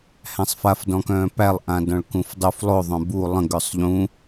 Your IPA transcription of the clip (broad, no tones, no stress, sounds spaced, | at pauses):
h æ̃ sˤ f a f d ɔ̃ k œ̃ː p æ lˠ ʔ ã d ɔ̃ ɭ k ũ f dˤ u f lˠ o ðˤ œ̃ b u lˠ ə̃ ɡ œ sˤ ʎ ũ